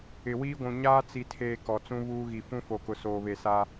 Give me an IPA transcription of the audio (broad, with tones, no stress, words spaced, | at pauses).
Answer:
ɪ˨wiː˦ɡʷũ˨ ɲaː˦t͡si˨tʰeː˨ kɔ˨t͡sũ˦ βuː˦ɣi˨ fũ˦fo˨kʊ˨ soː˨βe˨sa˦